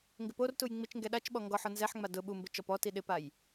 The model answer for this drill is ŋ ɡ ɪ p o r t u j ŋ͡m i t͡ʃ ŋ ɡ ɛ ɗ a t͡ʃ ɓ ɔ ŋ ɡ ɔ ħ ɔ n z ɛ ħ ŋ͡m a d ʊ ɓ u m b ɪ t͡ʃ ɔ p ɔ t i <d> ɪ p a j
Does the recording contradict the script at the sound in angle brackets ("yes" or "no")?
yes